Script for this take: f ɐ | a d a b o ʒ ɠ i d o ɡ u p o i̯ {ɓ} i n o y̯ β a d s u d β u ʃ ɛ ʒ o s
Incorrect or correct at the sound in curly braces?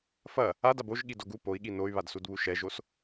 incorrect: ɠ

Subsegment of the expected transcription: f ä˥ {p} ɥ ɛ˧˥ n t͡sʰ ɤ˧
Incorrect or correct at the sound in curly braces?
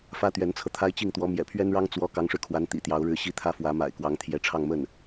incorrect: t̪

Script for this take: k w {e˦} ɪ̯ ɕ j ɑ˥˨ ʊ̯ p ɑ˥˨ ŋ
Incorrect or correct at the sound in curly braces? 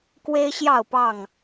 correct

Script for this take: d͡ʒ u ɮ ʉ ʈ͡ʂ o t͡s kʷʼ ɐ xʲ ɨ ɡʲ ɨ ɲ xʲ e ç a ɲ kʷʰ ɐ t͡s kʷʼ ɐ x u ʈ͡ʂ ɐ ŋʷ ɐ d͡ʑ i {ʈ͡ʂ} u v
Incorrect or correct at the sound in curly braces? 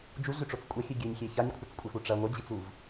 incorrect: t͡s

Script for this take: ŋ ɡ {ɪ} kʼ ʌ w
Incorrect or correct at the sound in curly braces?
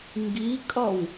incorrect: i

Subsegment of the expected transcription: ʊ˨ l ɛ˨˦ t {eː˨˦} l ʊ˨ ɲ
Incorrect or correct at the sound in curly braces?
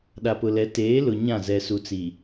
correct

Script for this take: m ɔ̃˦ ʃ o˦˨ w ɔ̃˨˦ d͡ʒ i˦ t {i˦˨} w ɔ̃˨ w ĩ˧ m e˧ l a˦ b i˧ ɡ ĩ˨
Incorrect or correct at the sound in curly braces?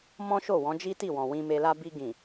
correct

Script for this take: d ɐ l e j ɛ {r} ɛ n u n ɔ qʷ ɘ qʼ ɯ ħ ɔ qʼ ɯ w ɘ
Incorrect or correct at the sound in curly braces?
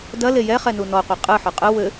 incorrect: χ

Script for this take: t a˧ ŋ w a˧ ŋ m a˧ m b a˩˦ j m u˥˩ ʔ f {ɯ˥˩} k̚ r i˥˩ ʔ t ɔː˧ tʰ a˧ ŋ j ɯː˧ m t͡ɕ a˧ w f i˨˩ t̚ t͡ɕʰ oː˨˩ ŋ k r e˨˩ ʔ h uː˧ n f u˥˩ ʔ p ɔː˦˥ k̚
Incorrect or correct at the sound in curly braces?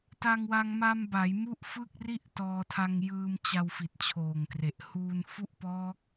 correct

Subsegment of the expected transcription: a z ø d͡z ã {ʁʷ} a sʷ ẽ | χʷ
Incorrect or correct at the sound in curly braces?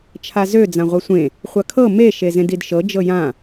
correct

